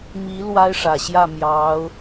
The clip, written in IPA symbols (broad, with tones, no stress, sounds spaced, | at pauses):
m i˧˥ l w a˥ ɪ̯ ʂ ä˨˩ ɕ j ä˥˩ m j ɑ˧˥ ʊ̯